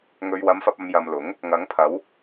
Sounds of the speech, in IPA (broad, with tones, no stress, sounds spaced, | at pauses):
ŋ ɵ˨ ɥ w ɐ˨˧ m f ɐ˨ p̚ ɐ˨ m j ɐ˨ m l ʊ˨˥ ŋ | ŋ ɐ˨˧ ŋ pʰ ɐ˨˧ w